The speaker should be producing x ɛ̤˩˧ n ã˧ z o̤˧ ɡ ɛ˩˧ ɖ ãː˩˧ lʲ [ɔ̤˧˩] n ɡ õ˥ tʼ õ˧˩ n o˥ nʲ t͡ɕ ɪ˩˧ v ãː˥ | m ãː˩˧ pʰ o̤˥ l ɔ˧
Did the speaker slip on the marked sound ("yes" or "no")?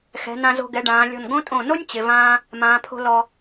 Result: no